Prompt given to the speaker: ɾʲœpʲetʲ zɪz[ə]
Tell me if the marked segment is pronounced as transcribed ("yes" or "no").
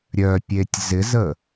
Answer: yes